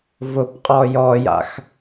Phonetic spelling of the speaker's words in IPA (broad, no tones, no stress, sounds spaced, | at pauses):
v ʊ p qʼ ɔ j ɔ j a̰ x